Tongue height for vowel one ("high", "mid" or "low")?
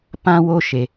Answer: low